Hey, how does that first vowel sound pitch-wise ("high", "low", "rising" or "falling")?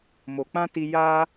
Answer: low